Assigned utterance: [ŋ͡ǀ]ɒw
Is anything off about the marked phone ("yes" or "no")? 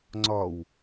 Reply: no